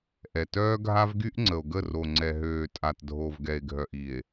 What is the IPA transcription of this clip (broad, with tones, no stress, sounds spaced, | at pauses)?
ʔ ɛ˨ t œː˦ ɡʱ a˦ v ɡ y˦ ʔ ŋ͡ǀ ə˨ o̯ ɡ ə˦˨ r o˨ ŋ͡ǀ ɛ˨ ɦ øː˨ tʼ a˨ t dʱ o˨ v ɡ ɛ˨ e̯ ɡʱ œ˨ ʔ i˨ e̯